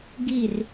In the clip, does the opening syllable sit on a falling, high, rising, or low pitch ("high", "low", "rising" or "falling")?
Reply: falling